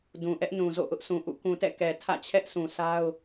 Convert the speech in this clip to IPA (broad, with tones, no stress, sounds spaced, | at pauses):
d ũ˨ ʔ ɛ˦ ʔ n ũ˨ z o̰˦˨ ʔ ʊ˦ ʔ s ũ˨ ʔ ṵ˦˨ k ũ˨ t ɛ̰˦˨ k ɛ˨ tʰ ä̰˦˨ t͡ɕʰ ɛ˦ ʔ sʰ ũ˨ s a˦ ʊ̯